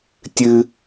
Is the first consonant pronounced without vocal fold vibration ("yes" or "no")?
yes